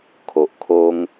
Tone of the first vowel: low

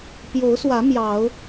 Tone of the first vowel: rising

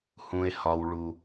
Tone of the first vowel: low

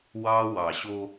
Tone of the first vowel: high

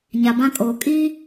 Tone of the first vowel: low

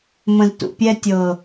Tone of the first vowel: low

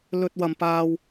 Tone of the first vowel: low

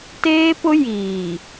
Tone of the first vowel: high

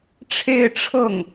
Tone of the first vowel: falling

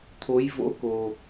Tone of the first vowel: rising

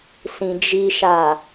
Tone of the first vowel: low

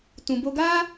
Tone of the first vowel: low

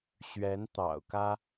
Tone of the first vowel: rising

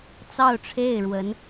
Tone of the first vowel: falling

